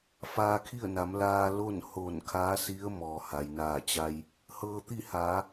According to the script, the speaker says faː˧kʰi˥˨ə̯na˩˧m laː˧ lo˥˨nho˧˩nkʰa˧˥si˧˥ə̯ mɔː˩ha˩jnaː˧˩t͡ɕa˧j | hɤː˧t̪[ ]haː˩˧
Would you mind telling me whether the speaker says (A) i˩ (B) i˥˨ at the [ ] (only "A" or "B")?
B